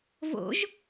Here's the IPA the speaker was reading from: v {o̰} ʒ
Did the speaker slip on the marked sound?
no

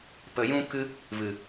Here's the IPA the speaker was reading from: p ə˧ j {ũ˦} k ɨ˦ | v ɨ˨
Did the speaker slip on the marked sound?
no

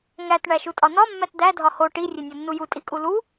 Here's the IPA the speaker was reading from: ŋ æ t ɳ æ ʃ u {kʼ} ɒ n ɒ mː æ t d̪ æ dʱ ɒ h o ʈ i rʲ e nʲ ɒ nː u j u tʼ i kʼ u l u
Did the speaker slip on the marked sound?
yes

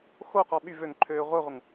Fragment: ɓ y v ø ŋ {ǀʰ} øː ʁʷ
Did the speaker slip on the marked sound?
yes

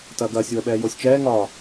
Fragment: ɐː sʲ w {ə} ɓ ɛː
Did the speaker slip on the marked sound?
no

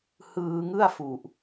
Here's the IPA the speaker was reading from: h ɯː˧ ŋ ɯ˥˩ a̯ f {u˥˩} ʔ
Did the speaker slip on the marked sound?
yes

